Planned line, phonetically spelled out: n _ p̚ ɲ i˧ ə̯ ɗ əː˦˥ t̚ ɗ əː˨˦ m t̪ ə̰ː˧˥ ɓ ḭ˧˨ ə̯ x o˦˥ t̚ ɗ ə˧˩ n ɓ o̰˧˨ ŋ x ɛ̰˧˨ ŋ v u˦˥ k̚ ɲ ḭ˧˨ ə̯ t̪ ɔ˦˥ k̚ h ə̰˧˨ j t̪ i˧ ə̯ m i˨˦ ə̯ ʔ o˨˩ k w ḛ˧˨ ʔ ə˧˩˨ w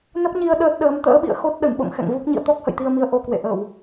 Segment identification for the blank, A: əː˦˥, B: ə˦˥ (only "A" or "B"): B